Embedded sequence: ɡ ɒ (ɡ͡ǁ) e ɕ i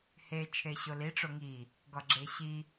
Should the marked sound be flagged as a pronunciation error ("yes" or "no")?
no